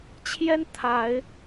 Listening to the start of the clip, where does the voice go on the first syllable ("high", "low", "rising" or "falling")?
high